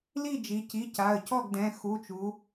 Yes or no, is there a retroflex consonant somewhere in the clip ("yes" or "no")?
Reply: no